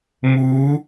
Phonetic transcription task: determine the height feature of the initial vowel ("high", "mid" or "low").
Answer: high